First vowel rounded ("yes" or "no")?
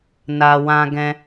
no